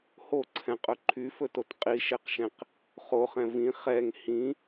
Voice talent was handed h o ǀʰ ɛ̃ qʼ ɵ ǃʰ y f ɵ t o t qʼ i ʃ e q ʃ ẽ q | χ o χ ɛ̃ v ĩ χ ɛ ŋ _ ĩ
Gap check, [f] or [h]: h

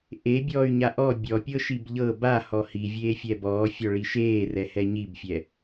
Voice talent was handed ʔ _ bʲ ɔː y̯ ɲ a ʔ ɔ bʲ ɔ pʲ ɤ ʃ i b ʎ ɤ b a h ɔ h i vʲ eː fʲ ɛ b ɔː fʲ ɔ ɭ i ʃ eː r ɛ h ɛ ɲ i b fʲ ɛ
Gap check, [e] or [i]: e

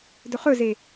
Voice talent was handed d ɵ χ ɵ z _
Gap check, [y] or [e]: e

